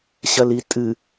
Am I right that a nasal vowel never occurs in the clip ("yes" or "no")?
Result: yes